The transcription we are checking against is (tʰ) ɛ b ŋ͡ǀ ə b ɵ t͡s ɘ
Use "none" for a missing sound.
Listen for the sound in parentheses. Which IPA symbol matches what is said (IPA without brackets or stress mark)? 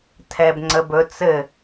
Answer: tʰ